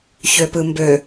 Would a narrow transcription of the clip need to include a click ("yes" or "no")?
no